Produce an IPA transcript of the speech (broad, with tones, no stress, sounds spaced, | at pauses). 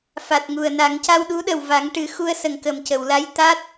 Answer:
f a˨˩ t̚ ŋ u˨˩ ə̯ n a˨˩˦ ŋ c a˧ w ɗ u˧˥ ɗ ə˨˩ w v a˨˩˦ ŋ ʈ ɨ˨˩˦ x u˧ ə̯ s ə˨˩ ŋ k ə˨˩ m c ə˨˩˨ w l a˧˥ j t̪ a˦˥ t̚